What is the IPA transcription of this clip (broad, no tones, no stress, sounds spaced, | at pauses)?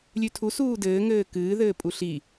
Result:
lʲ ʉ tʰ u s uː d ɘː ŋ ɘː k ɨː ð ɘː pʼ u ɬ i